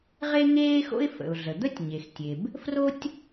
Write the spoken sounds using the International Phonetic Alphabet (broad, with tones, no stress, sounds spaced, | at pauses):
ʁ e˥ ŋ eː˥ x o̰˥ ɪ̯ f ə̰˩ ʊ̯ ɮ ə˩ d̪ ə˥ tʲ ɲ e˩ x tʲ e˩ b | f r o˥ tʲ